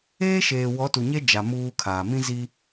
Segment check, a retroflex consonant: absent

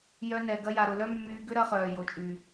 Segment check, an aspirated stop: absent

